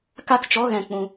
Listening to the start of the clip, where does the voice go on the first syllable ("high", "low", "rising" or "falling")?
high